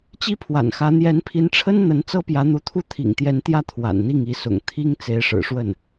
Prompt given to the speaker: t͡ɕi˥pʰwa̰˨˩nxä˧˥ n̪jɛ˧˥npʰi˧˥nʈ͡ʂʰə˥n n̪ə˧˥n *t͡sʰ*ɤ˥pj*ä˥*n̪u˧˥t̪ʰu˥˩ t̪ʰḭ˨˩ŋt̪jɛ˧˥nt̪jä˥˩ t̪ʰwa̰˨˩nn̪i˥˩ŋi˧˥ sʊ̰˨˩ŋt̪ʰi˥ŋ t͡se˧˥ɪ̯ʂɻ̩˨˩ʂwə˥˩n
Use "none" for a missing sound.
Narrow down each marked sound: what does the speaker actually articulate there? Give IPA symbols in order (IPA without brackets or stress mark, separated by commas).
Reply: t͡s, ä˧˥